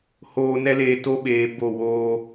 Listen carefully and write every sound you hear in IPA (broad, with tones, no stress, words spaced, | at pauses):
hoː˨nɛ˧leː˨ to˦ɓeː˨bo˦˨ woː˧